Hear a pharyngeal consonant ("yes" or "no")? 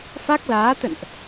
no